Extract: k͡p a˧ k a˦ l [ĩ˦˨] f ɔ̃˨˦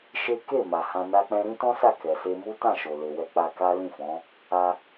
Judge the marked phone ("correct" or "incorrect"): correct